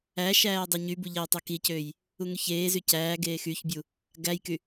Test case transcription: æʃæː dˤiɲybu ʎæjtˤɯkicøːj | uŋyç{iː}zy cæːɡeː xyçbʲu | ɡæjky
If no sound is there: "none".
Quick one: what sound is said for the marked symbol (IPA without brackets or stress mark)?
eː